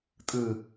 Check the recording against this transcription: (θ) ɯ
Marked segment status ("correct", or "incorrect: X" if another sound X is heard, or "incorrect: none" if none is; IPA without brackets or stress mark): incorrect: tʼ